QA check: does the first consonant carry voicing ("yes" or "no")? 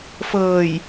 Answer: no